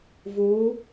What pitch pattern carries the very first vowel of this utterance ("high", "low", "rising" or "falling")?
rising